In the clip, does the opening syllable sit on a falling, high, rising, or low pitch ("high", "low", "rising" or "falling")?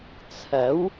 rising